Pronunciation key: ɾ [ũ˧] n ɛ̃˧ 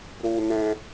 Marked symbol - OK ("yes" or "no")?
no